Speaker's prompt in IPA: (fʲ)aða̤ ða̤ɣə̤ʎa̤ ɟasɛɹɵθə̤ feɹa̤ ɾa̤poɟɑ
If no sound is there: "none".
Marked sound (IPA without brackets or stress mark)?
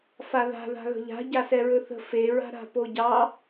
f